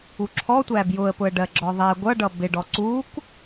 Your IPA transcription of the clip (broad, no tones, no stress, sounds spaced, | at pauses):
u ǁʰ ɔ tʷ æ b j ʊ ə̯ p ʊ ə̯ ɖ ɜ ɡ͡ǁ ɔ ðˤ ɛ ɡʷ ʌ ɖ ʌ b ɪ ɖ ɔ ǀ u k